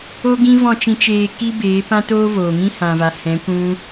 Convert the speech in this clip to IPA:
o˦ ɡ ĩ˦ v ɔ̃˦˨ t͡ʃ ĩ˧ t͡ʃ eː˧ k i˦ b eː˨˦ p ã˦ t oː˦ v oː˨ ŋ ĩ˦ h ã˨ v a˨ h ɛ̃˨˦ kʷ ũ˦

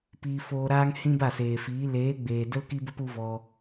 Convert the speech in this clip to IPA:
p iː˧ f oː˧ ɾ aː˦ ŋ h ĩ˦ b a˦˨ s eː˨ f iː˨˦ l eː˨˦ ɡ͡b eː˨ d ə˦ l k i˦ b ə˦ p u˦ v ɔ˧

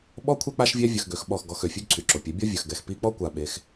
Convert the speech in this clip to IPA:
ɓ ɔ˦ kʷʰ ɛ˦ k͡p a˦ ʃ vʲ ɛ˦ vʲ œ˧ x ɡ ø˨˦ x ɓ ɔ˦˨ x ɡ ɔ˧ x ø˨ fʲ ø˦ ɡ ǀʰ y˨ ǁ o˨ pʲ ɛ˨˦ bʲ ɔ˦ vʲ œ˨ x ɡ ɛ˨ x p i˧ k͡p ɔ˦ kʷ a˧ ɓ e˧ x

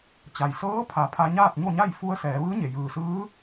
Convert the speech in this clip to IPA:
t͡ɕ a˩ j s ɤː˧˥ pʰ a˩˧ pʰ a˧ ɲ aː˥˨ t̚ ɲ o˥˨ ɲ a˥˨ j f u˧˥ ə̯ s ɛː˩˧ ʋ ɯː˧˥ ɲ e˩ j ɯː˩ s ɯː˧˥

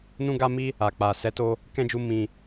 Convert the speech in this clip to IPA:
n ũ˧ ɡ a˧ m i˦ | a˨ k͡p a˨ s ɛ˨˦ t o˧ | k ɛ̃˦ d͡ʒ u˧ m ĩ˨

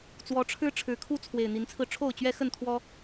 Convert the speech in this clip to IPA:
t͡s w ɔ˨˦ ʈ͡ʂʰ ɻ̩˦ ʈ͡ʂʰ ɻ̩˨˦ kʰ u˦ t͡sʰ w e˨˩ ɪ̯ n̪ i˨˦ n t͡sʰ ɹ̩˧ ʈ͡ʂʰ o˥˨ ʊ̯ t͡ɕ ɥ ɛ˦ x ə˥˨ n t̪ʰ w ɔ˦

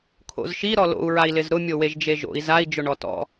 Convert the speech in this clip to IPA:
kʰ o̰ z ʃ i ɾ ɔ l o̰ u̯ ɹ a i̯ l ɪ z ɾ ʊ mʲ o w e ʒ d͡ʒ e ʒ o̰ i̯ z a i̯ d͡ʒ ʊ ɳ ɔ t ɔ̰

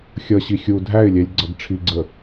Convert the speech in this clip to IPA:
xʲ ʌ ɕ i xʲ u dʱ æ ɪ̯ lʲ ɛ lʲ ɡ͡ǀ ʌ ɡ ʈ͡ʂʰ i ɡ͡ǀ ə

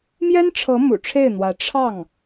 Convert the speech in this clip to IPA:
m j ɛ˥ n ʈ͡ʂʰ ɤ˧˥ m ṵ˨˩ ʈ͡ʂʰ e˥˩ ɪ̯ n̪ w ä˧˥ ʈ͡ʂʰ ɑ˥˩ ŋ

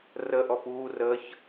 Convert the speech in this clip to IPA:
r ə ʔ ɔ p uː r ə ç

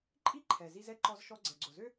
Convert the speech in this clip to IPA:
ǃʼ i˥ ǃʰ ɛ˩ z i˧ z ɛ˥ ǃ ɔ˧ z ʃ ɔ˧ ɡ͡ǀ ɛ˩ ɡ͡ǀ o˩ z ø˥

